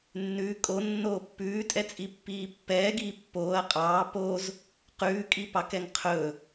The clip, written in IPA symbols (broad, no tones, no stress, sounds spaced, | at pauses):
nː ʉ kʼ o nː oː pː ʉː tʼ ɛ t͡sʼ i pː iː pː ɛː ɡ iː pː oː ɐ̯ qʼ ɑː p o z | q ʉː kʼ i p ɑ k ɛ ŋ qʰ ɵ